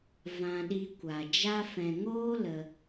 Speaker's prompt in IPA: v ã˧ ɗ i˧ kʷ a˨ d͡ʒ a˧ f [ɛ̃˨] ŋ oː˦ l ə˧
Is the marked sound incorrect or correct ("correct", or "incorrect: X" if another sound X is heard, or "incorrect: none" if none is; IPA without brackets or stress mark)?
correct